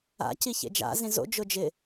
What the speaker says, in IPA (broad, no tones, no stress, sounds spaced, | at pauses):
a̰ c i ç ḛ d͡ʒ a̰ z ĩ z o̰ d͡ʒ ʊ d͡ʒ ɪ